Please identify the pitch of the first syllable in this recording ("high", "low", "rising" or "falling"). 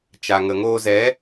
low